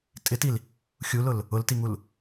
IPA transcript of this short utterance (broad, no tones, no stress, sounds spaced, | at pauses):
tʼ ɪ t i l | xʲ u l ʊ l | ʊ l t i ŋ u l